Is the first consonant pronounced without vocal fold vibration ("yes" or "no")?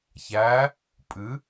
yes